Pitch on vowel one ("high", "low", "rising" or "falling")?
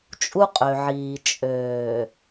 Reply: high